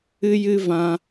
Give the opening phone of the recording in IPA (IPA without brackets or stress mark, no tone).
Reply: ɨ